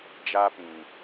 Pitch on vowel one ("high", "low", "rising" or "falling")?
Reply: high